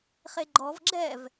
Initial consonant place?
uvular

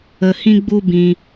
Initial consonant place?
glottal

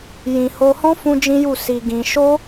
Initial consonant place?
palatal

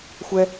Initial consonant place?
velar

